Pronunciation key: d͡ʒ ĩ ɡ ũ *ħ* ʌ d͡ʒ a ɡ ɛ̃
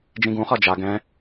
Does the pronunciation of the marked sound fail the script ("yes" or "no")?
yes